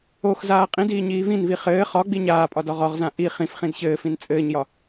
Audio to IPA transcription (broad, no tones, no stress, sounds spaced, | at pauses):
o x z aː qʼ ĩ d iː ɲ iː v ĩ n v i χ ɘː χ ɒ ɡ͡b i ɲ aː pʼ ɒ d ɒ ʁ ɒ ʁ z ã ʔ i χ ĩ f χ ĩ d ç ɘː f ĩ n t͡sʼ ɘː ɲ j ɒ